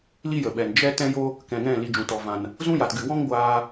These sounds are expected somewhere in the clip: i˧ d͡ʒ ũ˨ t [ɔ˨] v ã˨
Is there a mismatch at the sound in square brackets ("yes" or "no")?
no